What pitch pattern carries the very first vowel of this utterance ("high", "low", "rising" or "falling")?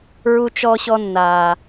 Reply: low